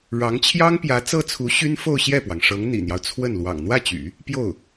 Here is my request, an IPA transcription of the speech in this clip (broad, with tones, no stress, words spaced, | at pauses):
ɻɑ˧˥ŋt͡ɕʰjɑ˥ŋpjä˧˥ t͡sɤ˥t͡sʰu˧˥ ɕy˥nfo˥˧ʊ̯ɕjɛ˥˩pwɑ˩ŋ ʂɤ˧˥ŋn̪ḭ˨˩n̪jɑ˦ʊ̯ t͡sʰwə˥˩n lwɑ̰˨˩ŋn̪wä˥˩t͡ɕy̰˨˩˦ | pjo˥˩ʊ̯